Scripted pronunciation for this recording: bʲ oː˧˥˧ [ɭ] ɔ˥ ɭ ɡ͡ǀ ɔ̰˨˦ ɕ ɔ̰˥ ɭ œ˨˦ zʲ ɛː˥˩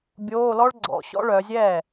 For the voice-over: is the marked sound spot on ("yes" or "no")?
no